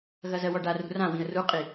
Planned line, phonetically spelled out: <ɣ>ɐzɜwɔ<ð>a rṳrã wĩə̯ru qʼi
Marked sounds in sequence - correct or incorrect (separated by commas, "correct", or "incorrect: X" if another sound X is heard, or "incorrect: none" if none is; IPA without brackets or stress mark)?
correct, incorrect: ɖ